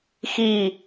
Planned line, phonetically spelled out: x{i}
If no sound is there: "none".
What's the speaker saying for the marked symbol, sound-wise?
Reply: i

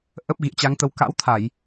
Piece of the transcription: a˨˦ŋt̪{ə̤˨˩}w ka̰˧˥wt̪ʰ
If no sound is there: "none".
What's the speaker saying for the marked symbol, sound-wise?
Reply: ə˨˦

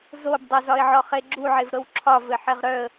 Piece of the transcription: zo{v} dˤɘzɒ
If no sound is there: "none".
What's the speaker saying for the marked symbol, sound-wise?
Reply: b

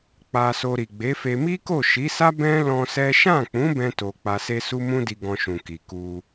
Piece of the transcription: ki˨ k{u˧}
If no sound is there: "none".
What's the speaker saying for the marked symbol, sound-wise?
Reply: u˧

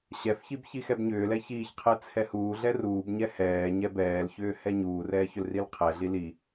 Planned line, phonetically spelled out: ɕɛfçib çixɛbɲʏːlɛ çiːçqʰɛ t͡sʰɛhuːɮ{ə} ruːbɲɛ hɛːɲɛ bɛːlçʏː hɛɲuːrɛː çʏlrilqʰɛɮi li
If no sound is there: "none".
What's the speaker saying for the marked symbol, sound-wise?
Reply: ɛ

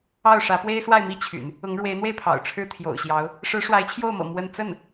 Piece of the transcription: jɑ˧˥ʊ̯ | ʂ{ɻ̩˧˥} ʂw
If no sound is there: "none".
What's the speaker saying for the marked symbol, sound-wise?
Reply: ɻ̩˧˥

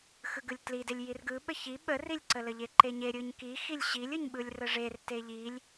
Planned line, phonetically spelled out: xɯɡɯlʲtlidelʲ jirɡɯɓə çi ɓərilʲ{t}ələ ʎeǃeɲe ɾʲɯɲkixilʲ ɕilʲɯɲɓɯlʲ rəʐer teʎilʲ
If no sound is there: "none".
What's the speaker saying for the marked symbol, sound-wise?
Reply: ǀ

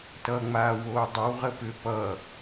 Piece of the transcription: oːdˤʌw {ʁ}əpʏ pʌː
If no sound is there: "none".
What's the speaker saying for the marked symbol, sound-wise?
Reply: ʁ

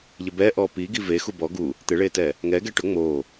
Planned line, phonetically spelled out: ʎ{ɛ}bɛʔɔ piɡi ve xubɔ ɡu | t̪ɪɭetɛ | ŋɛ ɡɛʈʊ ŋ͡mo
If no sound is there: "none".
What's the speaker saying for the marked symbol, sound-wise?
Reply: ɪ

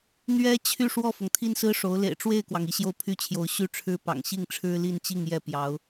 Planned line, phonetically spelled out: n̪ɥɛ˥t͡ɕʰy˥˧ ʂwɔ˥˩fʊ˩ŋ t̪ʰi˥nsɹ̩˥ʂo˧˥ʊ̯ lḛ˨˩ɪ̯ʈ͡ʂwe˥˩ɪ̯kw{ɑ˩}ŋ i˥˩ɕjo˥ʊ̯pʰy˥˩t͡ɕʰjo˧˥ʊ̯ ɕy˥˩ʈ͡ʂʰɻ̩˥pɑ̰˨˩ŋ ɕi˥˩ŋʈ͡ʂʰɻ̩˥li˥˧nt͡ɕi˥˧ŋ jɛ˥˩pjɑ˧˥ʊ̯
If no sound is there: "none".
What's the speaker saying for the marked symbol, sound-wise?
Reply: ɑ˩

